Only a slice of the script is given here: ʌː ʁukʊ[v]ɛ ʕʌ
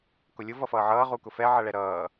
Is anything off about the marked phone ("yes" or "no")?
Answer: yes